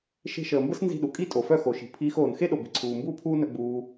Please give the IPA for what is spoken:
ʃ e̤˧ ʃ əː˨ m b ə˦ s n z i̤˦˨ ɗ u˨ kʼ i˦ tʼ o˨ f œ˦˨ x o˨ ʃ i̤˨ pʰ iː˧ x oː˨ n x e˦ ɗ o˨ b i̤˨ ǀʰ uː˨ m b uː˦ pʰ uː˦ n œ˧ ɡ͡b uː˧

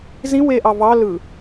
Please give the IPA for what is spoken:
z ĩ w e ʔ ɑ v ɑ l ɯ

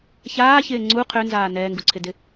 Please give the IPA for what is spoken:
ç aː ç ɪː ŋ͡ǀ u qʰ ø n z aː n ɛː ŋ ɡ u ǀʰ ɪ d ɪ

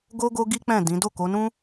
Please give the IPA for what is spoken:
ɡ o˦ ɡ o˦ ɡ i˦ k͡p ɛ̃˦˨ d ĩ˨˦ d o˦˨ k o˨˦ n ũ˦

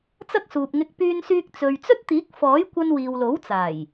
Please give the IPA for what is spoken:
t͡s ɐ˥ k̚ s uː˨ p̚ ŋ ɪ˧ k̚ p yː˧ n s yː˧ k̚ t͡s ɵ˨ ɥ t͡s ɵ˥ t̚ t̪ iː˨˥ k̚ f ɔː˨˥ j kʷ ɐ˧ n w iː˨ w l o˨˥ w t͡s aː˨˩ j

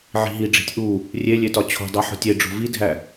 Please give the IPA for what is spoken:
ʕ i̤ ɦ i ɖ͡ʐ i̤ tʲ ʔ u | rʲ e lʲ e t ɒ t͡ɕʰ o̤ dˤ i ħ o̤ tʲ e ɖ͡ʐ o̤ v i dʱ æ

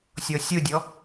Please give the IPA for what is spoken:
sʲ ɔ sʲ o dʲ ɔ

